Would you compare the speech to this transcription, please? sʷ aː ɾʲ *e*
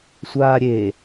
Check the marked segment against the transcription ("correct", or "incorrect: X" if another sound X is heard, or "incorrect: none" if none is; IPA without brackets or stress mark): correct